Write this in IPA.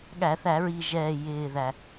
ɠ æ˧˩˧ θ æ˧˩˧ ɹ i˨˩ ʒ ɛː˨˩ j ɪː˨˩ ð æ˨˩

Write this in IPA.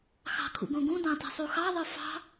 x ɑ̤ kʰ ṵ ɡ õ ɡ ũ d ɑ̃ t i̤ sˤ u x ɑ ðˤ ɯ f ɑ̤

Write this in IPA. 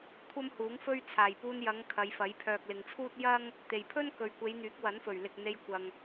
kʷʰ ɐ˥ m h uː˨˥ ŋ f ɵ˥ ɥ t͡sʰ aː˨˩ j p uː˧ n j ɐ˨˧ ŋ kʰ ɐ˨˧ j f ɐ˨˥ j pʰ œː˨ k̚ l ɪ˨ ŋ t͡sʰ uː˥ t̚ j ɐ˥ ŋ | t̪ e˨˩ j pʰ ɵ˥ n k ɵ˨ ɥ kʷ e˨˧ j n̪ yː˨˥ k̚ w ɐ˨˥ n f ɵ˨˩ ɥ l ɪ˨ k̚ n̪ e˧ j kʷ ɐ˨ ŋ

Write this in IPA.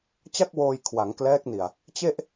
t͡ɕ a˥˩ k̚ w oː˧ j kʰ w a˩˦ ŋ k l ɛː˦˥ k̚ n i˨˩ a̯ | t͡ɕ e˥˩ ʔ

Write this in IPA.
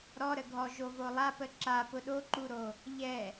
ɾ ɔ ɾ ə ɡʱ ɔ ʒ o v o lˠ a p ə ǁ a p ʊ ɗ o ǃ u ɾ o | ʎ ɛ

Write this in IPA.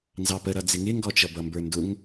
n z ɑ p ə ɾ ʌ d͡z ɪ ŋ ɪ ŋ ɡ ɔ t͡ʃ ʌ b ʌ m b ə˞ n d ʊ ŋ

